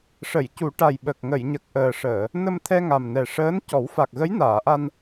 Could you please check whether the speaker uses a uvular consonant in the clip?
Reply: no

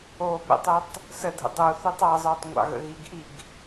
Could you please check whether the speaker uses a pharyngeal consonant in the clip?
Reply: no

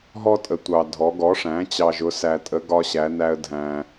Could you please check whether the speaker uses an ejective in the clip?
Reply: yes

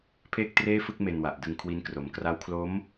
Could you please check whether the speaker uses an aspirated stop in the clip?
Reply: yes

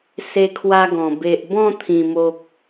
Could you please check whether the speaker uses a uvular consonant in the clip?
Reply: no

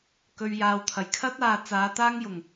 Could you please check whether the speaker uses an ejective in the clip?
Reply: no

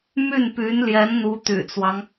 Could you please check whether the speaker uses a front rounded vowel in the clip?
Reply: yes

